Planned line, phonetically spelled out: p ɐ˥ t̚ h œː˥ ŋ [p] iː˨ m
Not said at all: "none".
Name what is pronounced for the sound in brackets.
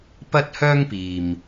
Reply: p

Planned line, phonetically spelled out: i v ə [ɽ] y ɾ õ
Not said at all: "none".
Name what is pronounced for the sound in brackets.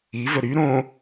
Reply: ɾ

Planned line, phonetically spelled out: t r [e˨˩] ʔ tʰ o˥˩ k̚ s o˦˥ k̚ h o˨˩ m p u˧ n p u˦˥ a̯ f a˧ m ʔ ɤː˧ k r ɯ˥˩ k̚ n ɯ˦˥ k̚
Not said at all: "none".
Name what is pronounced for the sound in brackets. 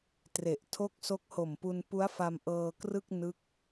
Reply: e˨˩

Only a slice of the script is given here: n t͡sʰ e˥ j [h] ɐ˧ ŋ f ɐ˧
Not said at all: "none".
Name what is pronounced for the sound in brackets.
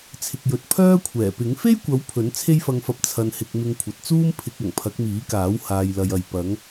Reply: f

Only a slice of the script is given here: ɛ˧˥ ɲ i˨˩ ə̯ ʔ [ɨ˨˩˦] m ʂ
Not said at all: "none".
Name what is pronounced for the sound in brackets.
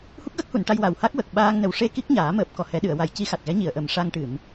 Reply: ə˨˩˦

